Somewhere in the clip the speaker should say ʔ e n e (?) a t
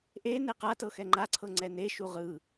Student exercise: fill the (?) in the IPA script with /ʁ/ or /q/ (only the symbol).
q